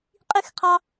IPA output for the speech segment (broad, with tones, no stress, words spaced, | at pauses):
qʼi˦xqʰɑ˦